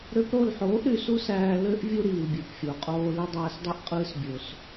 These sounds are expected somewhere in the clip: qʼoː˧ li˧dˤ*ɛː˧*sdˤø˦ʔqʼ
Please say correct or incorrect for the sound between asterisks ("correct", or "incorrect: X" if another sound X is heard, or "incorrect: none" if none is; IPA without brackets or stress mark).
incorrect: æː˧